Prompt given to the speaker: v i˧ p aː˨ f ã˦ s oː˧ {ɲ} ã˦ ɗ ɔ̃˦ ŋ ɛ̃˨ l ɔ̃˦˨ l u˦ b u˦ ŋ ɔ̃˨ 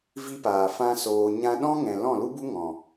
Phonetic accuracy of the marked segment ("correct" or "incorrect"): correct